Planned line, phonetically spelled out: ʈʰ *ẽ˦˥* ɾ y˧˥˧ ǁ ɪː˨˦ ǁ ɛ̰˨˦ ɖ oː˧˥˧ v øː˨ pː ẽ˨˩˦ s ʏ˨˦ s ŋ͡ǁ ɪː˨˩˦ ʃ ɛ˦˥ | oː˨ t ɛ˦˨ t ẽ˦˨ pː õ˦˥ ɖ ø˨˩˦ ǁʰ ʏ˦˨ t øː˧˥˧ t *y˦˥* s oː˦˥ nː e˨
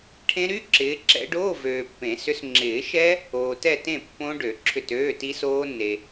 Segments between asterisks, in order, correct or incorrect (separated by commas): correct, incorrect